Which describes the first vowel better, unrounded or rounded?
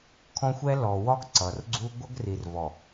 rounded